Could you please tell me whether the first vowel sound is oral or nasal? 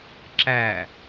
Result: oral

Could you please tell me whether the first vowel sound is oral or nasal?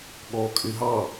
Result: oral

